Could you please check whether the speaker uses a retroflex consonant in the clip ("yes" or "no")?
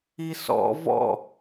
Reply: no